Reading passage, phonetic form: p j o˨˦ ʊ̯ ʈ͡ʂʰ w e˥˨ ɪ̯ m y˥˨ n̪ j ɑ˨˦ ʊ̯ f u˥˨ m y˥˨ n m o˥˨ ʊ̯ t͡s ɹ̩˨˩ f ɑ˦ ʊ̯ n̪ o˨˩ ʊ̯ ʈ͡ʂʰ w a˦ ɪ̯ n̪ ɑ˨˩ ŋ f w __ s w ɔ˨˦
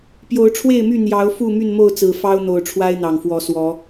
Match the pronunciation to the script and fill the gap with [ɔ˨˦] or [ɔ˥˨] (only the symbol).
ɔ˨˦